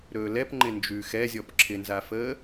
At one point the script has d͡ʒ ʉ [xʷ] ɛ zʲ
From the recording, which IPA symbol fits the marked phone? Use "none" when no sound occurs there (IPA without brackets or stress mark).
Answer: x